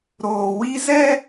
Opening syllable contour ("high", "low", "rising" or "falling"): low